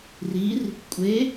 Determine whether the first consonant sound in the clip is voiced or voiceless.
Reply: voiced